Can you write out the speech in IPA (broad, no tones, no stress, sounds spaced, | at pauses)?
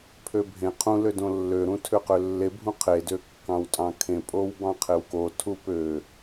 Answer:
pʰ ø bʱ ẽ qʰ ũ l ø d õ lː ø ɾ ũ tʰ ø q ø lː e bʱ ũ qʰ e d ø kː ɑ̃ w tʼ ɑ̃ kʰ ẽ pʼ o w b ɑ̃ qʰ e w k o tʰ u p ø